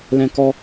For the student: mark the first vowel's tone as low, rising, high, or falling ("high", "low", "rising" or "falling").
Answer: high